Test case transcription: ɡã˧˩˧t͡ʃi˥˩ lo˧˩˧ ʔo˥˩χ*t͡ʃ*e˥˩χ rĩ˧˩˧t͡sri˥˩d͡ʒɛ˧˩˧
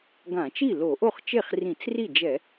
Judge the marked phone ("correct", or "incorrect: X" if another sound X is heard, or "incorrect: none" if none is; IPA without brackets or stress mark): correct